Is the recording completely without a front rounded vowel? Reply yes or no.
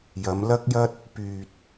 no